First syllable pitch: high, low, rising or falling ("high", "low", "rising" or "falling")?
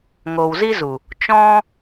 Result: low